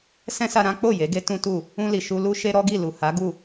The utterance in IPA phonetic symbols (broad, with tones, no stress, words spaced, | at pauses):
sɛ̃˦sa˧ɾã˦k͡po˦˨ je˨˦ɡe˦ tũ˦tu˦˨ | ũ˧li˨ ʃu˧lu˦ʃe˦ ɾɔ˦ɡi˦˨lu˨ha˨˦ ɡu˦˨